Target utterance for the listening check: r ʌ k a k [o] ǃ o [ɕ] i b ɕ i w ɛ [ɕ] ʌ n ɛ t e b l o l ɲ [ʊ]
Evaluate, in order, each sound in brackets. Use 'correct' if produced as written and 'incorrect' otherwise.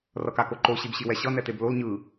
correct, correct, correct, incorrect: ɯ

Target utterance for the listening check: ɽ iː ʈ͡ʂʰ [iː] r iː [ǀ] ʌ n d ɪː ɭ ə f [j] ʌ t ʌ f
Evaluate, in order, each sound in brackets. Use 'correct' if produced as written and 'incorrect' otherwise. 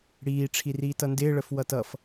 incorrect: i, incorrect: t, incorrect: w

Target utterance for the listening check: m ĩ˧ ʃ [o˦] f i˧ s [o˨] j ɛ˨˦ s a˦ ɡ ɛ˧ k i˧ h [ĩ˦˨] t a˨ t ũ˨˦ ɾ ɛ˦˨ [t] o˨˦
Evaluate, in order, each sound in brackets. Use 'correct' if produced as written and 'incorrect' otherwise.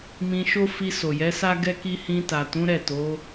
correct, correct, incorrect: ĩ˧, correct

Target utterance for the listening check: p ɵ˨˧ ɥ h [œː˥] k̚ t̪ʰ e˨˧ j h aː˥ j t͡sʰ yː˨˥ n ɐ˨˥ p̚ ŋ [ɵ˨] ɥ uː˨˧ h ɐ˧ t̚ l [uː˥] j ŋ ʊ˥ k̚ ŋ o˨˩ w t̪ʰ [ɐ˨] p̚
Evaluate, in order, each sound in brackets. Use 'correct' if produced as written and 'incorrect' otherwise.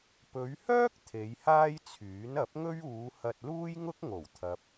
correct, incorrect: ɵ˥, correct, correct

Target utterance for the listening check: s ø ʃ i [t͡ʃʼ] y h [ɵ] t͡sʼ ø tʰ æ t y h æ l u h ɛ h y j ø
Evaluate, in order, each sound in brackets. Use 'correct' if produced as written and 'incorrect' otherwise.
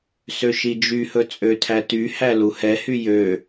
incorrect: d͡ʒ, correct

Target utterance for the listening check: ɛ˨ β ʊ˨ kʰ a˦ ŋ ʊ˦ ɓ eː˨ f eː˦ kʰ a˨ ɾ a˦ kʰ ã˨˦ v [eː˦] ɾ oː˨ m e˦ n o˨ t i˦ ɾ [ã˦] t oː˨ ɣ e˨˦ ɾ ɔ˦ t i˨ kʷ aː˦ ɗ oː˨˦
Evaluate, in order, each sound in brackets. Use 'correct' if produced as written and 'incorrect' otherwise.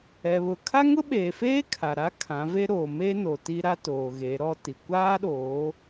incorrect: e˦, incorrect: a˦

